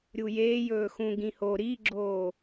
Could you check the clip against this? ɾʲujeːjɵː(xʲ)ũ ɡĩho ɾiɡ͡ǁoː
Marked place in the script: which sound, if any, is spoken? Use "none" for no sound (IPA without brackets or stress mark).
x